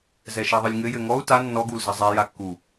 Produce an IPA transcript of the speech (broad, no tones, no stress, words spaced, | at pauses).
zɛʃɛðˤɨlʲŋɘ jɘŋɔu̯ ta nːɔ ɡulzɐzˤɛ jakːu